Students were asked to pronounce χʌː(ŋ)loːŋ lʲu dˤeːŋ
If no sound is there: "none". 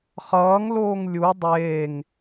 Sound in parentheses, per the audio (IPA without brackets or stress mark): ŋ